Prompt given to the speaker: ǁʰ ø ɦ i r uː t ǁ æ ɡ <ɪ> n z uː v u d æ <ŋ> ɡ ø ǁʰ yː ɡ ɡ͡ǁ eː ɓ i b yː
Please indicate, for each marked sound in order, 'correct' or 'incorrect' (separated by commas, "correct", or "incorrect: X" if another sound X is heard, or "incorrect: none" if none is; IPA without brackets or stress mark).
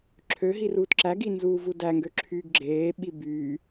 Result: incorrect: i, correct